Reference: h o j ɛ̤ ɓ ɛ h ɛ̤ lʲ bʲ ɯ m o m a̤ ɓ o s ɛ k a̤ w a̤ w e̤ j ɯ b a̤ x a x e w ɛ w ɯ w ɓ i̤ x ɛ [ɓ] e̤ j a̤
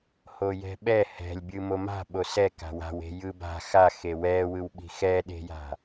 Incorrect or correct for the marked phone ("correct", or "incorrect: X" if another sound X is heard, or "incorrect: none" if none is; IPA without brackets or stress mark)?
incorrect: ɗ